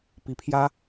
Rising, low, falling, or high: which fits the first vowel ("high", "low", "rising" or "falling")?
rising